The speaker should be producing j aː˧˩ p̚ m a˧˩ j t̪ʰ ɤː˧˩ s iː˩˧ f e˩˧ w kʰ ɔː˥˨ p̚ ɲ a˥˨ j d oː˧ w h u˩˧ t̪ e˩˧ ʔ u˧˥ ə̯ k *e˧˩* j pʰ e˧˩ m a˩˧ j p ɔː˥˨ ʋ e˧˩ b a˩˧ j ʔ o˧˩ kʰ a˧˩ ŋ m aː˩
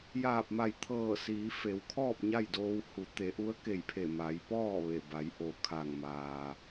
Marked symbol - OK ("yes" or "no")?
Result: yes